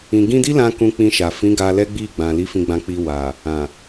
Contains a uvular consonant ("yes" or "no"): no